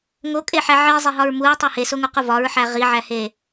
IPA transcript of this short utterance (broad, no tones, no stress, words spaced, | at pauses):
ŋokʼeħæ ʕizˤeɦɒɹ muɹtˤe hesoŋuqu vɒɹħæ ʁiʕæhe